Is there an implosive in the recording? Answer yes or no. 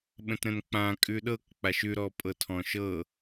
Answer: yes